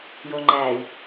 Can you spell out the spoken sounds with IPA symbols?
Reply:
j o ŋ͡ǃ æ i̯

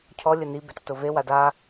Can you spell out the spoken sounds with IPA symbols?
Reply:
cʰ ɔ lʲ ə n i b e t ʊ t ʊ v e w a d a

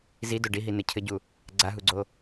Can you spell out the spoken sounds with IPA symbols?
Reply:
z i d o ɖ i ɦ i n ɘ cʰ ɘ ɟ u | ɡ͡ǀ a ɦ u ɡ͡ǀ o

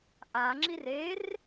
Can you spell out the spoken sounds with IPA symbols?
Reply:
ʔ a ŋ͡ǁ i r e r

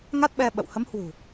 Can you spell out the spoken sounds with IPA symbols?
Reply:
ŋ a˦˥ t̚ ɓ ɛ˧ ɓ ə̰˧˨ w h ə˨˦ m h w ṳ˨˩

